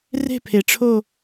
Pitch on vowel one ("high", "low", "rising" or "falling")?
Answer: falling